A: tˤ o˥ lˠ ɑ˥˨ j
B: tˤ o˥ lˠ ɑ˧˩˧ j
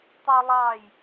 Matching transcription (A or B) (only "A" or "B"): A